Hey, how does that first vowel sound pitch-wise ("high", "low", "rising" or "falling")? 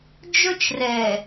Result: high